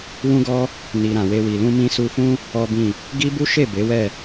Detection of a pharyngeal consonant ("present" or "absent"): absent